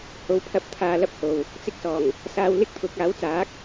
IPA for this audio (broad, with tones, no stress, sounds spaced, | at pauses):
h o˨˥ w pʰ ɐ˧ p̚ t̪ʰ aː˧ l ɐ˥ p̚ h o˨ w | t͡s ɪ˧ k̚ s ɔː˨˩ ŋ | s aː˨ w l ɪ˥ k̚ t̪ʰ ʊ˨ k̚ aː˨˥ w t͡s aː˨˥ k̚